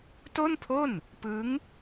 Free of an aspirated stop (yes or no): no